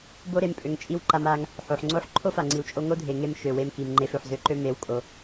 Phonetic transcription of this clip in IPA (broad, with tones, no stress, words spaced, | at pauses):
bo˦ɾe˧m pʼø˧ŋt͡ʃʼi˦w ǃa˧ma˧ŋ | ħo˨ħŋ͡ǀo˦ħ ǃʰo˦fa˨ŋ͡ǀi˨wt͡ʃʼo˧ ŋo˦ dʱe˨ŋe˧m ʃø˨we˧mki˨mŋ͡ǃe˧f ø˨ħzø˦ǃø˦ me˨˦w kʼo˨